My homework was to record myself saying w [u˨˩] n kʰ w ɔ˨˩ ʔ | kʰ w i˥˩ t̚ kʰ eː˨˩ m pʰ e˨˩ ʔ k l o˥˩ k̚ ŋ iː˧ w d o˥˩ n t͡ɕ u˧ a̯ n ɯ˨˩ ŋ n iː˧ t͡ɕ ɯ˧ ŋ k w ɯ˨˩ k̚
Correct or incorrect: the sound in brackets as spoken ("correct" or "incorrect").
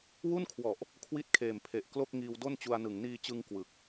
incorrect